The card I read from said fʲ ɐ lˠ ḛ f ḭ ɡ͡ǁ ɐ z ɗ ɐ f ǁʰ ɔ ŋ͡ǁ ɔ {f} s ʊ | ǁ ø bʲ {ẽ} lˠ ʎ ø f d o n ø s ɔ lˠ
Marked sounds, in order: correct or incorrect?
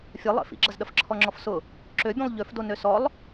correct, correct

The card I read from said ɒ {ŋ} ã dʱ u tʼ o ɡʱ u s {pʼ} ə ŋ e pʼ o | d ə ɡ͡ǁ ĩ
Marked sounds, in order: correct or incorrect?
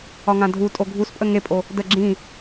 correct, correct

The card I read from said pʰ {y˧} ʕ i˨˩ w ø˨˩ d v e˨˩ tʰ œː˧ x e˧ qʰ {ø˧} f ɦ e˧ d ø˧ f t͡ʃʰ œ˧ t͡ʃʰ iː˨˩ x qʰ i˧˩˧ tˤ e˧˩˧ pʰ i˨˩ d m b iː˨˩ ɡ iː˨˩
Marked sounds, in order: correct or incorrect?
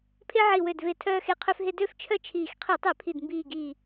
incorrect, correct

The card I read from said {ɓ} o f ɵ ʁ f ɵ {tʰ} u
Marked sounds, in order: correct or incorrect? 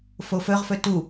incorrect, incorrect

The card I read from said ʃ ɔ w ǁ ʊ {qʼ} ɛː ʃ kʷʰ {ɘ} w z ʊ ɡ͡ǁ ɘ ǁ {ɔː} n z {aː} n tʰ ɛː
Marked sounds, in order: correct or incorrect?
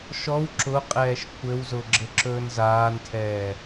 correct, correct, incorrect, correct

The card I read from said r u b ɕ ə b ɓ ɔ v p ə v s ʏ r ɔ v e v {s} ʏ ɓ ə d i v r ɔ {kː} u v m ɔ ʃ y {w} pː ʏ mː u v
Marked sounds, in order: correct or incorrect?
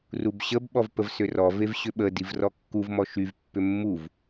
incorrect, correct, incorrect

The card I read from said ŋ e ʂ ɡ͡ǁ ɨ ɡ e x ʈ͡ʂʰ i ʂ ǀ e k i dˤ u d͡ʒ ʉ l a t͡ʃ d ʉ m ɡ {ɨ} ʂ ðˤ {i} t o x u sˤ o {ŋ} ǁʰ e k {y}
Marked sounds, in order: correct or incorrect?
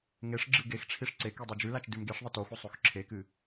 incorrect, incorrect, incorrect, incorrect

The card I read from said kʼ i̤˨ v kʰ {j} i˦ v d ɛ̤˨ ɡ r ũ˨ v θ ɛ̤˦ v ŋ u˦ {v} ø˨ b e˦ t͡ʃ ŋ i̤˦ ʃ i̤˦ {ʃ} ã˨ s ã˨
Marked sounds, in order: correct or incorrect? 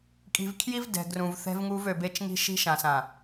correct, correct, correct

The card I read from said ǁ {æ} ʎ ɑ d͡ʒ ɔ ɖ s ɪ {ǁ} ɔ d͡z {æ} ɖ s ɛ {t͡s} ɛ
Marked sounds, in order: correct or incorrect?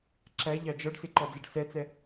correct, incorrect, incorrect, correct

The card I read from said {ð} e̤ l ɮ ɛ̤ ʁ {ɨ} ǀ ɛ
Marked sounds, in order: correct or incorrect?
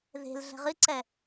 correct, correct

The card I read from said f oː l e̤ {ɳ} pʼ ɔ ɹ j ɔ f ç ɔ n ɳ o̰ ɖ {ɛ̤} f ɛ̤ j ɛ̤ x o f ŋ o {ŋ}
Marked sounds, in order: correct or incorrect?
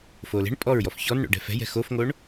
correct, correct, incorrect

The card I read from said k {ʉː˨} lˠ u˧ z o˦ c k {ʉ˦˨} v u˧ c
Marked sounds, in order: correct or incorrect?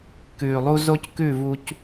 correct, correct

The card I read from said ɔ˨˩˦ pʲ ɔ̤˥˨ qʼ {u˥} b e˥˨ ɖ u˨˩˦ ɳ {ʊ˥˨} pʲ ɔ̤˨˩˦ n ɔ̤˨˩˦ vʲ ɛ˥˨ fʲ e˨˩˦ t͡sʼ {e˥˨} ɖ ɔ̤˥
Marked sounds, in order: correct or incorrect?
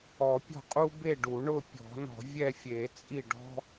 correct, correct, incorrect

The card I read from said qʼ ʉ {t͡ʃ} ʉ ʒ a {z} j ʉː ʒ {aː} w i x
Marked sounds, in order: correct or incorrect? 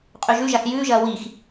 incorrect, incorrect, incorrect

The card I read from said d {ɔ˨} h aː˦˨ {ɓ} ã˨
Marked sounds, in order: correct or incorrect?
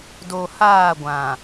incorrect, incorrect

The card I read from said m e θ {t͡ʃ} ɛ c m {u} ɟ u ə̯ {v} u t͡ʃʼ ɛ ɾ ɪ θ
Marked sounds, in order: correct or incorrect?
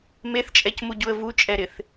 incorrect, correct, correct

